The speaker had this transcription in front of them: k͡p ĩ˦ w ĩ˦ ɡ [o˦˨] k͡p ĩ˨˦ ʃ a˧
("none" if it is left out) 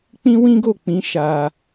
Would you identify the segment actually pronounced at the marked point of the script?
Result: o˦˨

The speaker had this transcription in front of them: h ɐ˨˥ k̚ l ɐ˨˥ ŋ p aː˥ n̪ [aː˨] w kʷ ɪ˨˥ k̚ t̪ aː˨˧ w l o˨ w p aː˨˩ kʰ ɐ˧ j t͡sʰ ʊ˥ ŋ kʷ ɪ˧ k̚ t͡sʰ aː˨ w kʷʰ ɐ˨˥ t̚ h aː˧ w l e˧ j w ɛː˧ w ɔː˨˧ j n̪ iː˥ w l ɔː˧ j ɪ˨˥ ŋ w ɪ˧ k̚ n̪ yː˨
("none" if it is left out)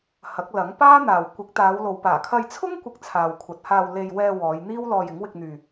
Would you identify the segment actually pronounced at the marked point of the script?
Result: aː˨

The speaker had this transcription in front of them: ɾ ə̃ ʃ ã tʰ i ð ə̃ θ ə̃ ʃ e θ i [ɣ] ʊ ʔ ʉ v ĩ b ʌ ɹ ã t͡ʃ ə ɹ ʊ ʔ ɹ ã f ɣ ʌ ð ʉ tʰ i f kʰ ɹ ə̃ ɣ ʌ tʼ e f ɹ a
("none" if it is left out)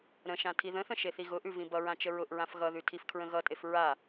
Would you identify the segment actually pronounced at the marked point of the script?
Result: ɣ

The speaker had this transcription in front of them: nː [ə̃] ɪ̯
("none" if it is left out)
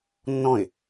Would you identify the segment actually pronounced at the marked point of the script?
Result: ɔ̃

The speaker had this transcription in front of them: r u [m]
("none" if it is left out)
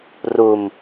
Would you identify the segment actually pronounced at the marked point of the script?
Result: m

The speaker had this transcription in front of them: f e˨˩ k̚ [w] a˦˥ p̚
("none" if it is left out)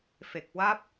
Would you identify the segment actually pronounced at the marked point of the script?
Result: w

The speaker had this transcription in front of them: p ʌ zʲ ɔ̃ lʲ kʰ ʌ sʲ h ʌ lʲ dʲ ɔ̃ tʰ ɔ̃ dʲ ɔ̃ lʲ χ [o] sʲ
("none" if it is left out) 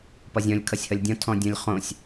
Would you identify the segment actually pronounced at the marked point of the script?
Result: õ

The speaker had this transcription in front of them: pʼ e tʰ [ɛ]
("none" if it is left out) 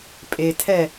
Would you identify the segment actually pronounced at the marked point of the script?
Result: ɛ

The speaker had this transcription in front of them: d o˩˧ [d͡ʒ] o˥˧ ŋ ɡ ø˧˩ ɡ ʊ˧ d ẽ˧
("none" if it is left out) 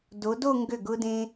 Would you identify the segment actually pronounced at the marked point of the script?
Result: d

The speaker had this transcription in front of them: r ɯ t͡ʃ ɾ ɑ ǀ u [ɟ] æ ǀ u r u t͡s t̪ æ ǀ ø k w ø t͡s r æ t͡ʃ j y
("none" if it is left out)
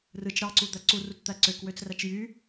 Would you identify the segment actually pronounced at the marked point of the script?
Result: d̪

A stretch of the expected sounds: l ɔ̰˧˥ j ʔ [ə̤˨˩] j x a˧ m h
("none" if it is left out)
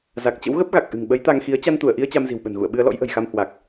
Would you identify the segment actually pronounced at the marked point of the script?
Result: ə̤˨˩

